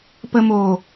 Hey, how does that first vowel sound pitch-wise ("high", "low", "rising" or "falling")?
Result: low